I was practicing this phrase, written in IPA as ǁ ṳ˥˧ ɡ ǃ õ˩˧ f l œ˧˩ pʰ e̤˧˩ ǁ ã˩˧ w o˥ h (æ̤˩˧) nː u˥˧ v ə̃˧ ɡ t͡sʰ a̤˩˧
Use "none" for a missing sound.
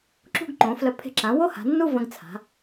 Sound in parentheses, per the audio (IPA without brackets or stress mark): a̤˩˧